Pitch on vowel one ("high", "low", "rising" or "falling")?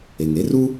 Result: low